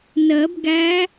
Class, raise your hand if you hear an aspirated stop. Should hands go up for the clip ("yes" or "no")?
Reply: no